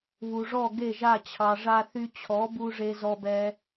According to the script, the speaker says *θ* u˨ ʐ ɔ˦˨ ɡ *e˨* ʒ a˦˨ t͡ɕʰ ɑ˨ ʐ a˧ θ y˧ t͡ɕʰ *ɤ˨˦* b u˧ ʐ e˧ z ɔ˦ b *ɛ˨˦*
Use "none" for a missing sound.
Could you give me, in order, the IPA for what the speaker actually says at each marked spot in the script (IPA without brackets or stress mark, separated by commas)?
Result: β, e˦˨, ɔ˨˦, ɛ˦